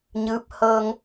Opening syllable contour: rising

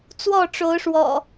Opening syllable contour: falling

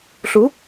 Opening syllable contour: rising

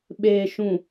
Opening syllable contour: low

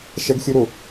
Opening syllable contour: high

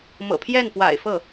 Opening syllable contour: low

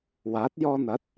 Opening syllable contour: rising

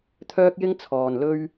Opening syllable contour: high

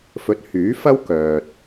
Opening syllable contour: rising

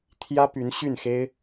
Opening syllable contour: high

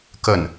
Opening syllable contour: falling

